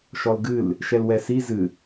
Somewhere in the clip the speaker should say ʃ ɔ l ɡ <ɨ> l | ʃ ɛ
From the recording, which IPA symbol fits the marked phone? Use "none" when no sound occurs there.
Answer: ɨ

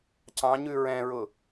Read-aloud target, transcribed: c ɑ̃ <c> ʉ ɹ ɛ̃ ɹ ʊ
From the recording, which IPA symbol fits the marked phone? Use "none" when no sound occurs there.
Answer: ɲ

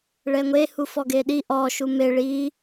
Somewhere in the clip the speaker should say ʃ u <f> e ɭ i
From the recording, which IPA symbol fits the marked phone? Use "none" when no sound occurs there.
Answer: m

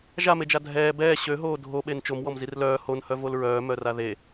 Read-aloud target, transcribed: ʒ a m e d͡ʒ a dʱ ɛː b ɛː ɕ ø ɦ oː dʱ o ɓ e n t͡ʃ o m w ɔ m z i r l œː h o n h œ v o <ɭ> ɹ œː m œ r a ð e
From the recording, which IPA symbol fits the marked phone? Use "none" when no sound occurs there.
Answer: l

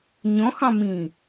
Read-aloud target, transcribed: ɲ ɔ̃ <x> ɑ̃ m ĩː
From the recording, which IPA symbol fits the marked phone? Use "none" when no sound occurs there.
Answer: x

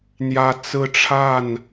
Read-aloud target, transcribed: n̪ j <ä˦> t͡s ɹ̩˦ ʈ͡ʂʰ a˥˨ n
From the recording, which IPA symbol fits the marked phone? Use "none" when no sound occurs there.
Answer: ä˦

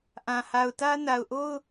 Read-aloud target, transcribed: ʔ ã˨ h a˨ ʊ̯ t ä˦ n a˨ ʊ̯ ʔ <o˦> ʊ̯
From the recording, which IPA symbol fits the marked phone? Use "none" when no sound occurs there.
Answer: o˦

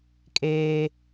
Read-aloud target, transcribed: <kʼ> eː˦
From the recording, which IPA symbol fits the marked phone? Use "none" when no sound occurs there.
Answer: kʼ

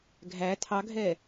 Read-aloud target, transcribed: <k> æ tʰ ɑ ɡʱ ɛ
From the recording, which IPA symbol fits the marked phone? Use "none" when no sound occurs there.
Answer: ɡʱ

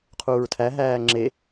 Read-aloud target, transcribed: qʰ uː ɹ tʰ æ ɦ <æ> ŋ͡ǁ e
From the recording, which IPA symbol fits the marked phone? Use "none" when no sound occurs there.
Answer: æː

